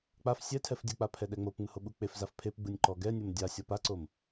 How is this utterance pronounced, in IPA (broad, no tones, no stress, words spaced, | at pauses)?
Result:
k͡paf sʲɛtʰɛf dʲɯk͡pa pʰɛɗɛŋ͡mopŋ͡mɯ hoɓuk͡pefzaf pʰep ɡ͡bɯnʲǃɔɡɛnʲom dʲa sʲɔpaǀom